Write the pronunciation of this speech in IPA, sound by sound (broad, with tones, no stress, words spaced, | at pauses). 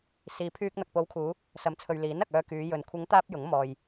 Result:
siː˨pʰyː˧k̚ n̪ɐ˨k̚po˨˧wkʰuː˨˧ | sɐ˨˥mt͡sʰɵ˨ɥ liː˨˥n ɐ˨k̚œː˧kyː˨˧ jɵ˨n kʷʰɪ˨˧ŋ t̪aː˥p̚jʊ˨˥ŋ mɔː˨j